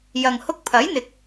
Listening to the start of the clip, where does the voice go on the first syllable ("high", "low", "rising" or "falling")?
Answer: low